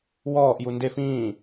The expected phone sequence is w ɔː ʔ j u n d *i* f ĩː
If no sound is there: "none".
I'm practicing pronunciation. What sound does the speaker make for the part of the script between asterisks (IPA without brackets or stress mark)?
e